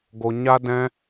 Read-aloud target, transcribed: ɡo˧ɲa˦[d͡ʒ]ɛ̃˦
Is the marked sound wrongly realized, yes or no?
yes